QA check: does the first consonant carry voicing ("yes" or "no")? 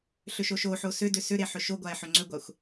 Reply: no